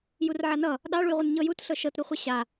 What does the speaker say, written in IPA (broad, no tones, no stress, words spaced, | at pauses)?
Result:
jurʕanʌ | ɗɑɭujʁʷʌn ɲɤjut ɬɤʃɤtɾuχʷe ɕa